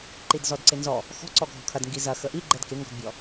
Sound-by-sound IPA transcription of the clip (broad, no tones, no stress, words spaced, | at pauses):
ǃidzɔdǀɪnzɔ | xɔ̤ǀɔɡʱɔ̤ kʰɐdŋɡi zɐ xəʔi ɡ͡ǃɛdkɪŋɡɔ̤dbʲɔ